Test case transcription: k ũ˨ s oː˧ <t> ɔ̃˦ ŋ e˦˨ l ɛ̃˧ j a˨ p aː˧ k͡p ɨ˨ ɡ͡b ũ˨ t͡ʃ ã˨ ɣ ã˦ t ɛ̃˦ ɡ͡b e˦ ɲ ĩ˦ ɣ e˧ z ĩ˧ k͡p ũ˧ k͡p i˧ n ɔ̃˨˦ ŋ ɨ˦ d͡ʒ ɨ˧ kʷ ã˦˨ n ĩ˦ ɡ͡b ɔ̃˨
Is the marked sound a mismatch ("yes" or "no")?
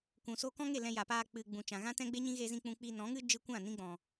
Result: yes